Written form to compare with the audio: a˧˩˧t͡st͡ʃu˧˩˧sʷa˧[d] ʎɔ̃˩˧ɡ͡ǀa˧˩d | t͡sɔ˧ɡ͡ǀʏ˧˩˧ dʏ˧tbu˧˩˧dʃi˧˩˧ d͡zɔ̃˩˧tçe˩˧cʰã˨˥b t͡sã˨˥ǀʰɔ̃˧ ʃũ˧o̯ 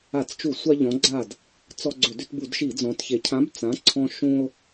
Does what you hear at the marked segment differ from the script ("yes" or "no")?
yes